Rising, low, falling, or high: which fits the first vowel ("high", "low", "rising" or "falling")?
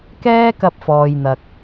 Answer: high